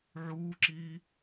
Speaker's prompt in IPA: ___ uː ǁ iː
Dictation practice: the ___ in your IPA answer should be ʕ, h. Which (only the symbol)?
ʕ